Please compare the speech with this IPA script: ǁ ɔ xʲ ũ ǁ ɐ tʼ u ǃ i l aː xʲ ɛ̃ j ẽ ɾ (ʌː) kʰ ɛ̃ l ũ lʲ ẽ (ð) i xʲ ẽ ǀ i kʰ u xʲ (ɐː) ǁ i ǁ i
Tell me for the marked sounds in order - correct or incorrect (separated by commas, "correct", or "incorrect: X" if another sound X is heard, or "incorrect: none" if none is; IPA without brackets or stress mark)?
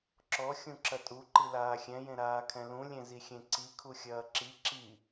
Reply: incorrect: aː, incorrect: z, correct